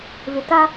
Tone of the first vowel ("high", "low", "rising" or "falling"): low